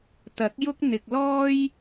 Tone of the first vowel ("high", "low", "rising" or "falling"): rising